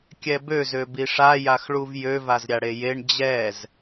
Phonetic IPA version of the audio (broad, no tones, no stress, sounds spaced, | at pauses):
kʲ ɛ b ø z ø b i ʂ a j a x ɭ u v j ø v a z ɾʲ a ɽ e j e ɳ d͡ʑ ɛ z